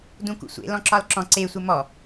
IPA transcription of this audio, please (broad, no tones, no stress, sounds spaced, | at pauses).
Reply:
d ũ k ṵ sʷ ḛ l ɔ̃ ǁ ɒ l ǁ ɔ̃ ǀ e sʷ e m ɔ